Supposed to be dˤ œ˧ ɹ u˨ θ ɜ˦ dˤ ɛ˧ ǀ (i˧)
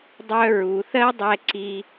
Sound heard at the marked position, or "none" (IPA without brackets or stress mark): i˧